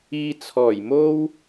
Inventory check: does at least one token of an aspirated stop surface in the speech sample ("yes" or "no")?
yes